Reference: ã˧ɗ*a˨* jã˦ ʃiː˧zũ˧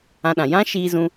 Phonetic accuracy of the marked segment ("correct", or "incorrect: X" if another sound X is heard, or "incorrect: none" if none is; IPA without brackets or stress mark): incorrect: ã˨